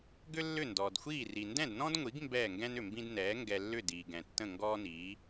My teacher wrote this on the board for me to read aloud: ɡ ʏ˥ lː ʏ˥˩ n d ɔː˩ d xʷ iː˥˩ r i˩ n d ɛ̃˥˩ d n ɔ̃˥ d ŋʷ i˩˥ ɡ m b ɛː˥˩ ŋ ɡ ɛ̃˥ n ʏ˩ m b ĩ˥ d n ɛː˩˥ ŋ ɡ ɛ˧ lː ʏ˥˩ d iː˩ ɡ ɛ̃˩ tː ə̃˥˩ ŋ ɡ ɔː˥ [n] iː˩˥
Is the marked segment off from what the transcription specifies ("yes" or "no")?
no